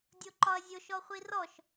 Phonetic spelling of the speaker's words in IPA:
dʲ o ǃ ɒ ɐ̯ zʲ o ʃ ɔ χʷ i r ɔ ʃ

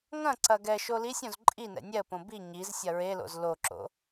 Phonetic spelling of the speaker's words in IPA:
ŋ ɐ̃ ǀ ɐ ɡ ɛ ʃ o l i sʲ õ z ǃʼ i n ɛ̰ nʲ ɛ ə̯ p õ b i ɲ i z sʲ ɐ ɹ e l o̰ z l o ǁ o̰

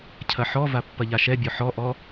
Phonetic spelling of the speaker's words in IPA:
cʰ ɐ ħ ɔ v a pː ɐ ʎ a ʃ ɛ bʲ ɔ ħ ɔ ʔ ɔ

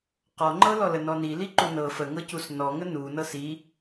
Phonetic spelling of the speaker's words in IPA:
q ɔ ŋ͡ǃ ɤ l ɔ l ə n ɔ n i l i ǃ u n ɤ f ə ŋ ɤ c u s n ɔ ŋ ə n u n ɤ s i

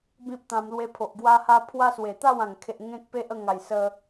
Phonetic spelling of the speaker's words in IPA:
b ĩ˦ p̚ t̪ ã˧ m l w e˧ pʰ o˨ ʔ ɡ w a˦ h a˦ pʰ w a˦ s w e˨˩ t̪ a˥˧ w ã˨˩ ŋ kʰ e˨ ʔ ŋ ẽ˦ k̚ p e˦ ʔ ə˥˧ ŋ a˨˩ j s ə˧

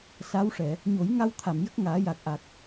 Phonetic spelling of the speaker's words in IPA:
s a˧˥ w ʂ ɛ˨˩˨ | ɲ o˨˩˦ j ŋ a˧ w t̪ʰ a˨˩˨ m j ə˦˥ k̚ ŋ aː˨˩˦ j a˨˩ k̚ ʔ a˨˩ k̚

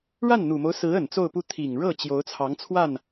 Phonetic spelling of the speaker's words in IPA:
ɻ a˥˩ n n̪ u˨˩ m o˦ ʊ̯ s ɹ̩˧˥ ə˨˩ n t͡s o˥˧ ʊ̯ p u˥˩ t̪ʰ i˨˩ ŋ ɻ ɤ˥˩ t͡ɕ j o˧˥ ʊ̯ t͡sʰ ɑ˧˥ ŋ t͡sʰ w a˥˩ n

